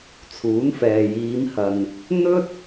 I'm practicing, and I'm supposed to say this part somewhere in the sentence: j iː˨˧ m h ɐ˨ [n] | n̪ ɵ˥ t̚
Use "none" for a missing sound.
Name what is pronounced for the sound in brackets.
n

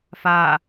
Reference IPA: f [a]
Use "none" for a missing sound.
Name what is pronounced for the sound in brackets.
a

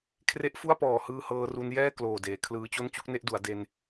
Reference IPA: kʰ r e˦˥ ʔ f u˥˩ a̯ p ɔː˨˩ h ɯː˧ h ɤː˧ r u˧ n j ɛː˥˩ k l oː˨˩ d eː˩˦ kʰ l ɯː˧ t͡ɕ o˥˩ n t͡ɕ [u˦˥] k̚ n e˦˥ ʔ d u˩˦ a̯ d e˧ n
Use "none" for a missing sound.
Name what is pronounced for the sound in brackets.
u˦˥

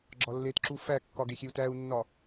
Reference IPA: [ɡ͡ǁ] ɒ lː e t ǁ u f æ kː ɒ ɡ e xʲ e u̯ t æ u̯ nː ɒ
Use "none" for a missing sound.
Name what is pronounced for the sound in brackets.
ɡ͡ǁ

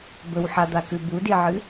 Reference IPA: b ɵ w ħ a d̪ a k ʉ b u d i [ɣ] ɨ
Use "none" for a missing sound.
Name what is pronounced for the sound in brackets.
ʕ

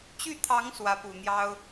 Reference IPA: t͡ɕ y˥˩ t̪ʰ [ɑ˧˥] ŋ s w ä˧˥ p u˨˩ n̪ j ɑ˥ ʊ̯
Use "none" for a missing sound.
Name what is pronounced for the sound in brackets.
ɑ˧˥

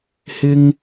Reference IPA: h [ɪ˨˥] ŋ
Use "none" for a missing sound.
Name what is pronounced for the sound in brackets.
ɪ˧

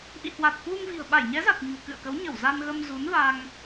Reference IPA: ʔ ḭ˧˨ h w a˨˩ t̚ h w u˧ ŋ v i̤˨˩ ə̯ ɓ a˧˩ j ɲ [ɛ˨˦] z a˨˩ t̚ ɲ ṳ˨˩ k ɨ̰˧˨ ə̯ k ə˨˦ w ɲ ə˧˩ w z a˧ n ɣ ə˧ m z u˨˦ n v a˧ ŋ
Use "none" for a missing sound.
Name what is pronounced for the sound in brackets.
ɛ˨˦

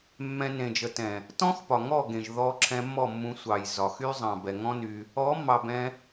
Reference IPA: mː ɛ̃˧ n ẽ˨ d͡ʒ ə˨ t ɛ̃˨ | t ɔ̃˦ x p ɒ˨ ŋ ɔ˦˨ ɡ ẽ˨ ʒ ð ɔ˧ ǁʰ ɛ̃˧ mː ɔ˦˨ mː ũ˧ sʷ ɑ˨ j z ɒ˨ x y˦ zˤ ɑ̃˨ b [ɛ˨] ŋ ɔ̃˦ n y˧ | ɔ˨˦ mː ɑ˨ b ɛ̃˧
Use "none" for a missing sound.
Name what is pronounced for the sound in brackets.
ɛ˨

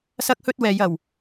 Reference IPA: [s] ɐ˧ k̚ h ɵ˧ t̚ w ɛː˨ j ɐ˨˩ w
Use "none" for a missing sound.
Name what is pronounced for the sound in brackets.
s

